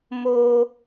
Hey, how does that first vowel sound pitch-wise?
low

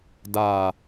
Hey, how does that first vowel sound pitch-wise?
low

